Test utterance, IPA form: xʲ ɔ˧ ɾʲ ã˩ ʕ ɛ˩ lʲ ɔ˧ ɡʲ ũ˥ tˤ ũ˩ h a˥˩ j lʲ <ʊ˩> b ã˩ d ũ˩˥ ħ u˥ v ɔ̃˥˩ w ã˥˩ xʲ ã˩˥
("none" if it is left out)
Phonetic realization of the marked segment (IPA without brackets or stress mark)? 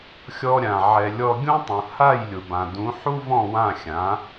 ʊ˩